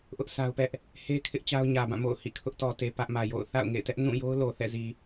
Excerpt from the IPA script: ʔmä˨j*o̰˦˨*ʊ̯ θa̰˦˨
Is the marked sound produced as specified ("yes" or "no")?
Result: yes